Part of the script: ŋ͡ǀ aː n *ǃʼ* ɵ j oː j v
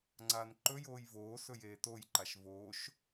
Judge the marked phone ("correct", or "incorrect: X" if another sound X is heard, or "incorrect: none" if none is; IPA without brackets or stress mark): incorrect: ǃ